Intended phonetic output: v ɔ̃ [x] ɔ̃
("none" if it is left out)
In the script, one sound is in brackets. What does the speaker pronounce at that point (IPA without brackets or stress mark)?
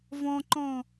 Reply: ǃ